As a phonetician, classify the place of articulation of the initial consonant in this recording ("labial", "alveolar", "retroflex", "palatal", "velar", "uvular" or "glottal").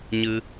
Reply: palatal